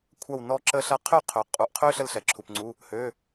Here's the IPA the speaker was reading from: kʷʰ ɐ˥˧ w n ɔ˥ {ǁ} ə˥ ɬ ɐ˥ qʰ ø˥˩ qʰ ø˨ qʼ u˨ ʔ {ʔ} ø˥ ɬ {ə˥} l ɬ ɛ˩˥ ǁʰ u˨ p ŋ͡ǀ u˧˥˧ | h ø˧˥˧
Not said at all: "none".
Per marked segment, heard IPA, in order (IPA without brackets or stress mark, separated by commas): ǁ, qʰ, ə˥